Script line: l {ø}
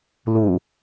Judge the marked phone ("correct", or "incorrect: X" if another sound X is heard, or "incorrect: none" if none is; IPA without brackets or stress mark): incorrect: u